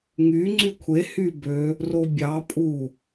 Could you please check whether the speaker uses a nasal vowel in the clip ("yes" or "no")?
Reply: no